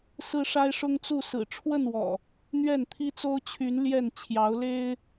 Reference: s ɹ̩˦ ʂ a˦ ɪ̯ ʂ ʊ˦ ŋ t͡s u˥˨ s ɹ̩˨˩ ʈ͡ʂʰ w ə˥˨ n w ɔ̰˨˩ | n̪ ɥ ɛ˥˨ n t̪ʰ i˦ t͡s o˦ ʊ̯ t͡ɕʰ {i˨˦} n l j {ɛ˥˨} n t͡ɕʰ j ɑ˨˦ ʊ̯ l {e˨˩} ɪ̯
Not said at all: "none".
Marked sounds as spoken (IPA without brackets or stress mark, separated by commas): y˨˦, ɛ˥˨, e˦